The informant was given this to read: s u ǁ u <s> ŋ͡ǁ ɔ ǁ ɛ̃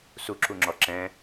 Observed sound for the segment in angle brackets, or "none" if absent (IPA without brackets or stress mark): none